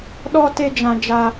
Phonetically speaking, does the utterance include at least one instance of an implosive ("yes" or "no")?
yes